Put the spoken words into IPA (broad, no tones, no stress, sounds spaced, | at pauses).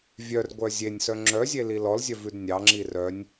vʲ œ r ɡʷ œ zʲ e nʲ s œ ŋ͡ǁ œ zʲ e l i l ɔ l zʲ œ v ʉ d nʲ ɑ ŋ͡ǁ i r œ nʲ